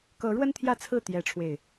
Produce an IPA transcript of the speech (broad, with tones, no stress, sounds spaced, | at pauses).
k ɤ˨˦ ɻ w ə˦ n t̪ʰ j ä˥˨ t͡sʰ ɹ̩˥˨ t̪ j ɛ˨˦ ʈ͡ʂʰ w e˨˩ ɪ̯